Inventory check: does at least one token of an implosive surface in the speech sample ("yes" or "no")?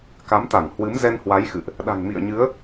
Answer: yes